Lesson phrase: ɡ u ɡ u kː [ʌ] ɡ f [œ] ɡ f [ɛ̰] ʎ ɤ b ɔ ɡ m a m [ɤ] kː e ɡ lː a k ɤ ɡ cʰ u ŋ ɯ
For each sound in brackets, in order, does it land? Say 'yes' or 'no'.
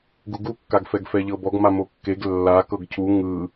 no, no, no, no

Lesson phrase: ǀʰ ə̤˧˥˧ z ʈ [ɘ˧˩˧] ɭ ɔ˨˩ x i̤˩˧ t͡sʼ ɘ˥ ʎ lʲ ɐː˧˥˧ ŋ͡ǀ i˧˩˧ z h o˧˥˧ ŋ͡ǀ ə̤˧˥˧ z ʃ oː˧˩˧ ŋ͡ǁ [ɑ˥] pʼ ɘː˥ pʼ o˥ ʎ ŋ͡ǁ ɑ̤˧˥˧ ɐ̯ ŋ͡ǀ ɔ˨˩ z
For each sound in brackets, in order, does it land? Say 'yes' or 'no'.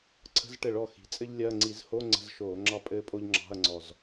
yes, yes

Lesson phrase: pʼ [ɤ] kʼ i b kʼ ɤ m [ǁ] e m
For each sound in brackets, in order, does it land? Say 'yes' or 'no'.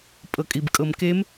yes, no

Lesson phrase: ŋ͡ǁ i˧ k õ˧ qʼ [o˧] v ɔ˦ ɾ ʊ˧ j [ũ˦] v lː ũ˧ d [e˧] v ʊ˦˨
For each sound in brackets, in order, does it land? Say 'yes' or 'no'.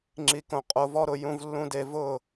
yes, no, yes

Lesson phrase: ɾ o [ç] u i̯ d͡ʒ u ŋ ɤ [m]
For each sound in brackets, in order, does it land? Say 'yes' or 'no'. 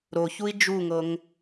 yes, no

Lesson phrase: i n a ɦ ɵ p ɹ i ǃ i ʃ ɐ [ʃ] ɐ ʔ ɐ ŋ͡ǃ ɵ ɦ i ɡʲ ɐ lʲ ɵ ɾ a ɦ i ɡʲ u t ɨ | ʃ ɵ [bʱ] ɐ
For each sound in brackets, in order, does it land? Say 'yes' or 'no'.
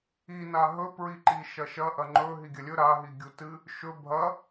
yes, yes

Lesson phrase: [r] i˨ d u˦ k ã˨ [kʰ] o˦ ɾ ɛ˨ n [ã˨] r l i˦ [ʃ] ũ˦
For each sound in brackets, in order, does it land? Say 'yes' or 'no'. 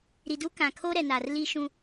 no, yes, no, yes

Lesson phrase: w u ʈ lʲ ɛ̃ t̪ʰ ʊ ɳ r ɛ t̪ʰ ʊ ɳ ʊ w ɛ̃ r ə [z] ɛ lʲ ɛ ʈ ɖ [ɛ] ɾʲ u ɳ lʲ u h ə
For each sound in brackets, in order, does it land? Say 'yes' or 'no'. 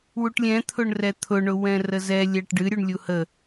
yes, no

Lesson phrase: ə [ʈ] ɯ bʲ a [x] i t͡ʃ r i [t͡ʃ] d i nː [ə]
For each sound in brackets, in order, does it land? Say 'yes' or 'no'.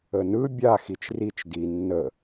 no, yes, yes, yes

